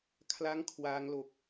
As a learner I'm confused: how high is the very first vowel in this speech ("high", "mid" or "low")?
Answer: low